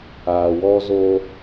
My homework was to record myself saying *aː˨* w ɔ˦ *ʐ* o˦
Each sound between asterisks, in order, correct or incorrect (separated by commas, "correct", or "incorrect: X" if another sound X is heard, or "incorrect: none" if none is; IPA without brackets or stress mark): correct, incorrect: z